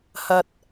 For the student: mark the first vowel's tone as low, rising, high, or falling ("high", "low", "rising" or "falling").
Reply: high